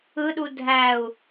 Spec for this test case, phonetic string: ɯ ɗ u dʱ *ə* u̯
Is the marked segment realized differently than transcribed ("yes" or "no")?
yes